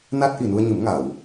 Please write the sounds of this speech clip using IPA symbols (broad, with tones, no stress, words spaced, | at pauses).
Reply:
na˦˥t̚ʔi˨˩nu˧ə̯ɲɨ˨˩˦m ŋa˨˩˨w